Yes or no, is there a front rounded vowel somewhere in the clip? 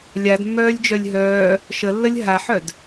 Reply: yes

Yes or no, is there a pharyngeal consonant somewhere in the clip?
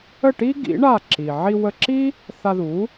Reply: yes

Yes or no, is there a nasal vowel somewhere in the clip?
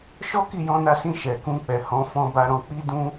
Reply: yes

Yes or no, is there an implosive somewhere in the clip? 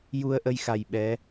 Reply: yes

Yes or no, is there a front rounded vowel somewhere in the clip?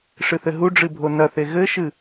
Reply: no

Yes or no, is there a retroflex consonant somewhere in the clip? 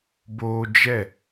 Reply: no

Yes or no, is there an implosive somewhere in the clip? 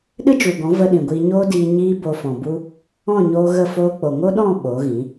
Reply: yes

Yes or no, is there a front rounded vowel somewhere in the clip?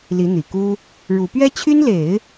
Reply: yes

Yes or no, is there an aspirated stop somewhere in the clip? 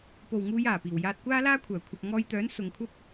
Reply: yes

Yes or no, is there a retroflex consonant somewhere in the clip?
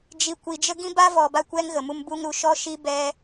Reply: no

